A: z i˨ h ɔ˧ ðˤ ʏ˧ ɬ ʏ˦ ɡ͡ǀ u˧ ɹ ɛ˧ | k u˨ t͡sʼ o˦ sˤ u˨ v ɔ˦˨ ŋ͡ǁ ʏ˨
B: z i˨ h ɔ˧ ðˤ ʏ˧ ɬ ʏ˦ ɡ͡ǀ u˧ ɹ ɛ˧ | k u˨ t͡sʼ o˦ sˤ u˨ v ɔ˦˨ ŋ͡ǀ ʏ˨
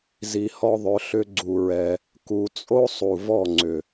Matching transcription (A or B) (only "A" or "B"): B